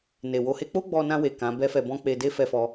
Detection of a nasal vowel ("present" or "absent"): present